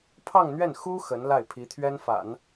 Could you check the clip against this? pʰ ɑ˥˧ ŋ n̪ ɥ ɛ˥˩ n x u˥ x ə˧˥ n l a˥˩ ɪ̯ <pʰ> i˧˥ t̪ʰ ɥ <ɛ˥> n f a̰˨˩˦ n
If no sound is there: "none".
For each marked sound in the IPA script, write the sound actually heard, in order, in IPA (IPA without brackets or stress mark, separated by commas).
pʰ, ɛ˥